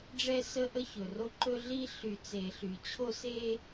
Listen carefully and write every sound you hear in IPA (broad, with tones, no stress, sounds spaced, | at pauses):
ɖ͡ʐ ɛ˦ s ə˦ ʔ ə˦ ç ɵ˨ r o˦ ǃ ɵ˦ ɮ i˦ ɬ y˨ t͡s e˨ ɬ y˨ t͡ɕʰ o˦ s e˦